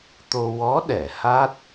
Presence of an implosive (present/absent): present